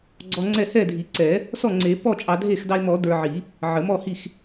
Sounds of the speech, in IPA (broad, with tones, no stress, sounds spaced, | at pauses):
ɡ͡ǀ ɔ˧ ŋ͡ǀ ɛ˥˩ h ɛ˥˩ dʱ i˨˩˦ ǀ ɛ˨˩˦ | s ɔ˥˩ ŋ͡ǀ e˨˩˦ p ɔ˥˩ t͡ʃʼ ɑ˧ dʱ e˥˩ x d ɑ˧ e̯ m ɔ˨˩˦ d ə˞˧ ʕ i˨˩˦ | ʕ ə˨˩˦ m ɔ˥˩ h i˥˩ x